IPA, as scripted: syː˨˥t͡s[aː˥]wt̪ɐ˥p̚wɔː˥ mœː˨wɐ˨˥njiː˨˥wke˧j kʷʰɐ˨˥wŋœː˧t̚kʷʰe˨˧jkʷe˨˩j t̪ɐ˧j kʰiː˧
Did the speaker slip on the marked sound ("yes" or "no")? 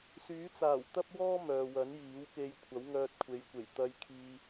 yes